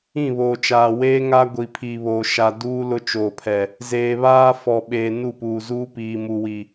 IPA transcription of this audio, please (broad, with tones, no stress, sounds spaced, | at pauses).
ĩ˦˨ β oː˨ t͡ʃ aː˨ w eː˦ ŋ a˦ ɡʷ i˨ pʰ i˨ β oː˨ ʃ a˨ d uː˦ l ʊ˦ t͡ʃ oː˨ pʰ ɛ˨ | z eː˨ β aː˦ f ɔ˨ ɓ eː˨ n u˦˨ p uː˨ z uː˦ p iː˨ m u˨ w i˨